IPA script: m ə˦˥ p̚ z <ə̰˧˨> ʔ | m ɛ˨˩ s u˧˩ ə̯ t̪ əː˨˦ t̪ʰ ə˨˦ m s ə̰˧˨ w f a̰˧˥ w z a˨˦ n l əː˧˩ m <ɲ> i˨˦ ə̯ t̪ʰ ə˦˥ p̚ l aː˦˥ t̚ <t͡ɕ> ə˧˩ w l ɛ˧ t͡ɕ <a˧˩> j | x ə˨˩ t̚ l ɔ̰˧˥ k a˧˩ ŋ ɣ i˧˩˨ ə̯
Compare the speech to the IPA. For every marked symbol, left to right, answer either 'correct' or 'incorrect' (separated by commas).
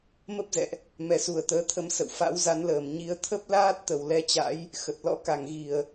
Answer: incorrect, correct, incorrect, incorrect